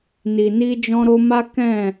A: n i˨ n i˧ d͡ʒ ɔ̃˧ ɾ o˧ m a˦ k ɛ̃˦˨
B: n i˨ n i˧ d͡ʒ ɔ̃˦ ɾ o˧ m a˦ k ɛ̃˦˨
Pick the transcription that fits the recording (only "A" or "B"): A